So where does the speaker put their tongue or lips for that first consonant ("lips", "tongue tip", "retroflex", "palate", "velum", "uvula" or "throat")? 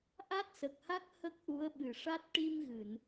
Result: throat